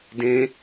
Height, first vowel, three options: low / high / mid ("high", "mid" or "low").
mid